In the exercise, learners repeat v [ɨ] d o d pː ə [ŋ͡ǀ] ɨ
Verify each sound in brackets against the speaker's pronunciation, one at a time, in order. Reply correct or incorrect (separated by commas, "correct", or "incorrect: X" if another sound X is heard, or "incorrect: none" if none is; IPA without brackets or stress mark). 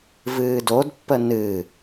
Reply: incorrect: ɨː, incorrect: n